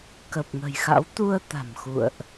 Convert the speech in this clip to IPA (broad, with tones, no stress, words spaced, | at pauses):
kə˨˩p̚ŋə̤˨˩jxa̰˧˥w t̪u˧ə̯t̪a̤˨˩m xṵ˧˨ə̯ʔ